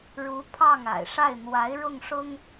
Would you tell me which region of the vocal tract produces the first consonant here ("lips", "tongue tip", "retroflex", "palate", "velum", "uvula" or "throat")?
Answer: retroflex